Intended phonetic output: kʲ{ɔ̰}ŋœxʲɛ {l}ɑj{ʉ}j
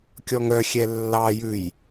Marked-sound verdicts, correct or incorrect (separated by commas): incorrect, incorrect, correct